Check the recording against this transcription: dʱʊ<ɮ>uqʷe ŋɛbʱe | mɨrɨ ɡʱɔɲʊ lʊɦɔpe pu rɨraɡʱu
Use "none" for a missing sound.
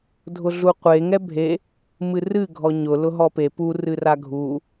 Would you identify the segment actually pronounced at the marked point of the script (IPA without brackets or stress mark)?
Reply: ɮ